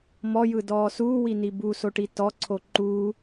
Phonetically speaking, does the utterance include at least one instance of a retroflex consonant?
yes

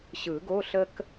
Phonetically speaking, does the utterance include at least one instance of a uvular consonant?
no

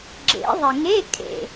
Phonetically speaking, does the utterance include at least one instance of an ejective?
yes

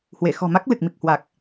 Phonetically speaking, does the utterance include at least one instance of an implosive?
no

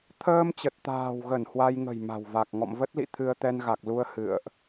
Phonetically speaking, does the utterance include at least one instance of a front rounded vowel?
no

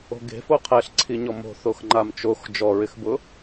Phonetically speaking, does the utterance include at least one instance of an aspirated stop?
yes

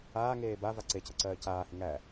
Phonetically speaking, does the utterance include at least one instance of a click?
yes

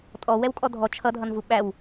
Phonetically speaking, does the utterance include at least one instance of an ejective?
yes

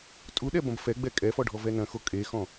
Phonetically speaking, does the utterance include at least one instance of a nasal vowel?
yes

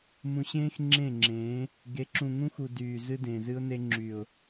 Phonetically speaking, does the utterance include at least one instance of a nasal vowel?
yes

